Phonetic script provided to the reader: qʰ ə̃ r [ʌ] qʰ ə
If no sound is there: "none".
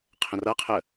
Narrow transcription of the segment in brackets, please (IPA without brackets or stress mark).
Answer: ʌ